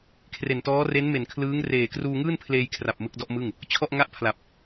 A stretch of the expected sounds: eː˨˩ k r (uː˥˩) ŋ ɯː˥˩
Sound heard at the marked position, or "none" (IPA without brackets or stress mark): uː˧